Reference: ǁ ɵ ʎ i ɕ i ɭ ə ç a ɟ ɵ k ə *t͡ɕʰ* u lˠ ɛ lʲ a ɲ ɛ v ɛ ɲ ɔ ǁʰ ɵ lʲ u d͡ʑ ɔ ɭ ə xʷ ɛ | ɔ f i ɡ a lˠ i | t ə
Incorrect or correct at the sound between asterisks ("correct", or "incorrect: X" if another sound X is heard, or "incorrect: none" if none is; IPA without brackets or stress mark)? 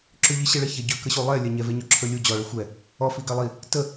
incorrect: ɕ